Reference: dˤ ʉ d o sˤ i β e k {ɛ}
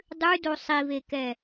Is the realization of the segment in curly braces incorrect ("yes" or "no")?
no